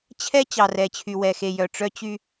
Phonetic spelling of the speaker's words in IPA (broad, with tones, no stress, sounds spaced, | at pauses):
t͡ɕʰ ɛ˦ t͡ɕ ɑ˨ r ɛ˨ t͡ɕʰ y˨ w ɛ˨ x e˨ j œ˨ ʈ͡ʂ œ˦ t͡ɕ y˦